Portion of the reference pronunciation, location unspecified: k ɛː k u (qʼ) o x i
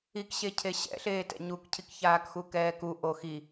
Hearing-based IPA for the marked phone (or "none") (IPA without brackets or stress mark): ʔ